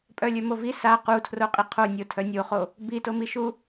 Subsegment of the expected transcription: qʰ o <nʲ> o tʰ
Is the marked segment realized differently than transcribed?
no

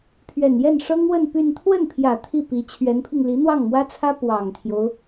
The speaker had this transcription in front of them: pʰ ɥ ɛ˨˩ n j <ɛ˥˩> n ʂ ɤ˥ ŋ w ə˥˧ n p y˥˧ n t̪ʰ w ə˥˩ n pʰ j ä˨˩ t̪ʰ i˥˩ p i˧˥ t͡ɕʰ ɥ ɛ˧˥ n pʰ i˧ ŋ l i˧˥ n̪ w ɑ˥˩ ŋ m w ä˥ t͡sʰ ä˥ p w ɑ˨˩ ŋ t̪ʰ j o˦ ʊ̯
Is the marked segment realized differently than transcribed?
no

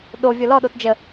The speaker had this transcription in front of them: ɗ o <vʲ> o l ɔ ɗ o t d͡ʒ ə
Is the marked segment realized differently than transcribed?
no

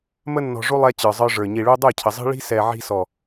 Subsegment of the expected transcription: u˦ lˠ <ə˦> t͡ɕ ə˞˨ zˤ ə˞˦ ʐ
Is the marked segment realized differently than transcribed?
yes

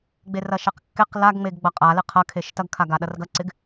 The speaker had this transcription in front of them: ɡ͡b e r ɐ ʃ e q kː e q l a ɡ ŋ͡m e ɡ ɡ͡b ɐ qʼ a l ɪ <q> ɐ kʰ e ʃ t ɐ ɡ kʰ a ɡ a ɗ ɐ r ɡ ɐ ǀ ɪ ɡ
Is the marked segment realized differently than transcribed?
yes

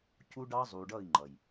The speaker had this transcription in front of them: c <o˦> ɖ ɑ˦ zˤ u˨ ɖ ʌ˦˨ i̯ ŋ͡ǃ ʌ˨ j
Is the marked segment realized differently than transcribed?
yes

